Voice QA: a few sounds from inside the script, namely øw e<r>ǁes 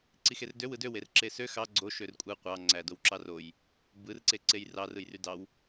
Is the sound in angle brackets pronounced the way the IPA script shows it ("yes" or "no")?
yes